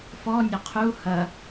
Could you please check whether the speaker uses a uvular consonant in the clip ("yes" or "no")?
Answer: yes